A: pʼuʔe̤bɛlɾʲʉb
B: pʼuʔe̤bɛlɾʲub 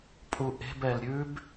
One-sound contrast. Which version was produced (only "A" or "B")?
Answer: A